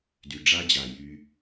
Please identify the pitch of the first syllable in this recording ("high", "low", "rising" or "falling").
low